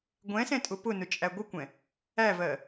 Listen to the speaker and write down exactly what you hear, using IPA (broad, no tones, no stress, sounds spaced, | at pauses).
ɡʷ ɛ̃ s ɛ̃ tʼ ʊ p ʊ n ʊ t͡ʃʼ æ ɡʷ ɪ kʷ ɛ̃ | æ v ɜ